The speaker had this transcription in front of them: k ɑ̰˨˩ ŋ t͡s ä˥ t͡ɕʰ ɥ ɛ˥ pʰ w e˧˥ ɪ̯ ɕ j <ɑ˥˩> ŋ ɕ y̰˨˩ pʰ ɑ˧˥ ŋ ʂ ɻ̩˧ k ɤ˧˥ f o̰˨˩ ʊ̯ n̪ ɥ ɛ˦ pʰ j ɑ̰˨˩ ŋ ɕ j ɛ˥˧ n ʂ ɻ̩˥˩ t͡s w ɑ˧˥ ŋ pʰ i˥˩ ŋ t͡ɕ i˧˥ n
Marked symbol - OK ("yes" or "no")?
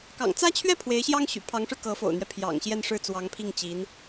no